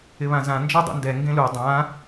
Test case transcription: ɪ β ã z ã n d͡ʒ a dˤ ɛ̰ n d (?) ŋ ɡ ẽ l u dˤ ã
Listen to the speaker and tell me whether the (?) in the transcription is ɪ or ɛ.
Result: ɛ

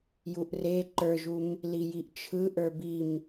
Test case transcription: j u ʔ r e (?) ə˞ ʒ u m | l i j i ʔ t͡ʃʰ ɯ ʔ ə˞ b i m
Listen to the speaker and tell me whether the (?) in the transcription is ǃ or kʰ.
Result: ǃ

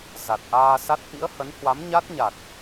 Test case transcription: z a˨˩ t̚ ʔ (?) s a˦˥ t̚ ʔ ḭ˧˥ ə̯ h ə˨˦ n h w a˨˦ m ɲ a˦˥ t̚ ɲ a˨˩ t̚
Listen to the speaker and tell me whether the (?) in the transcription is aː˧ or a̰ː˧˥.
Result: aː˧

